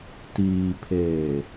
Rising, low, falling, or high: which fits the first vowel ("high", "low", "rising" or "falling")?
low